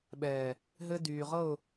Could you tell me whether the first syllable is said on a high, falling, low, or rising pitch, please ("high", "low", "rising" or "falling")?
low